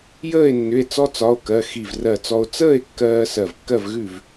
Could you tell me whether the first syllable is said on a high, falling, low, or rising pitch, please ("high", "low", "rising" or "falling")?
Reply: falling